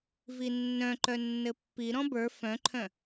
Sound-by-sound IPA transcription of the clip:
v i nː œ̃ ǃ œ nː ɘ pː i ɾ ɔ̃ b ə˞ f œ̃ ǃʰ œ̃

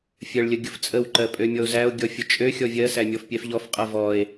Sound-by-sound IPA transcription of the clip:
fʲ ɜ ɭ lʲ ə ɡʲ ʊ f t͡sʼ ə w ǃ ɜ pʼ ø mʲ ɔ o̯ z æ o̯ ɡʲ ɔ fʲ ʊ t͡ʃʼ ø xʲ ɔ vʲ ɜ s æ mʲ ɔ f pʲ ɛ f ʎ ɔ f qʼ ɜ v ɔ e̯

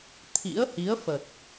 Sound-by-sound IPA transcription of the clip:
t̪ʰ ḭ˧˥ ə̯ h i˨˦ ə̯ f ə˨˩ t̚

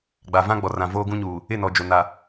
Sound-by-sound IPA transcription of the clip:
ɡ͡b a˨ v ã˦ ɡ͡b ɔ˨ r ã˨ v oː˦ ɡ ũ˦ ɲ uː˨ | ɪ˦˨ n ɔ˨ d͡ʒ o˨ n a˨

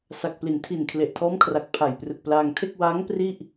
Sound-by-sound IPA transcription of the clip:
s a˨˩ k̚ p l i˩˦ n tʰ i˨˩ n kʰ l e˨˩ ʔ tʰ ɔː˦˥ m kʰ r a˨˩ k̚ pʰ a˨˩ j p r ɯ˨˩ k̚ p l aː˧ ŋ tʰ e˥˩ k̚ w aː˦˥ ŋ p r i˥˩ ʔ

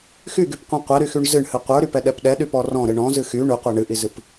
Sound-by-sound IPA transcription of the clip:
x y ɡ y p qʷ ĩ qʷ ɛ ɾ y x y ɳ z ɨ ɳ h ɨ qʷ ə˞ ɾ y p ɛ ɗ ɛ p ɗ ɛ ɗ y p ɔ r ɔ̃ ɾ ɨ ɳ ɔ̃ z ɨ x y ɳ y qʷ ɛ ɳ ɨ ʔ i z ɨ p

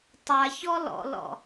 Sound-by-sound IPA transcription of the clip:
tˤ a ç ɔ l ɔ̰ l ɔ̰

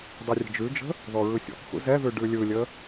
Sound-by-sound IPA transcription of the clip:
dˤ ɯ rʲ ə̤ d͡ʒ ʉ d͡ʒ ə̤ | ð ɔ ɹ ɯ sʲ ɔ̰ k x ṵ z ɛ ð ʉ ɖ ʉ lʲ ɯ lʲ ə

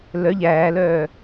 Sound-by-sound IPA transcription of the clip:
l œ ʎ æː l œː

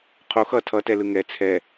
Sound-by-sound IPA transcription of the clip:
qʰ o x ʌ tʰ ʌ t ɛ l ɯ ŋ ɛ t͡sʰ ɛ

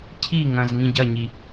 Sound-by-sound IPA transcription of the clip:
cʰ i ŋ ɐ̃ z ŋ ĩ ɟ ɐ ɲ i

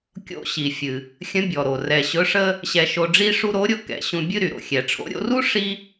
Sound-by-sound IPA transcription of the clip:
kʲ o̰˧ ɕ i˩ fʲ ɨ˩ | xʲ ə̃˧˥ bʲ ɔ˩ ɾ o˩ r ɛ˩ ɕ ɵ˧˥ ʂ ə˥ | ɕ ɛ˧ ʃ o˧ ɖ͡ʐ i˥ ʂ u˥ ɾ o˧˥ ɾʲ ʊ˧˥ k ɛ̰˩˧ ɕ ũ˧ bʲ ɨ˥ ɾ y˩ ɾ o̰˩ xʲ ɛ˩ ʈ͡ʂʰ o̰˧˥ ɾʲ o̰˧ r u˥ ʂ i˥

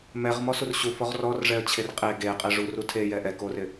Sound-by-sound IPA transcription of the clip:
m ɛ ʁ m ɔ s u r ɕ u f ɔ ʁ r ɔ r ʐ ɛ ə̯ t͡ɕʰ e r qʼ e ɡ e qʼ ɛ ʐ u r u tʰ e j ɛ ʔ ɛ k o r ɪ

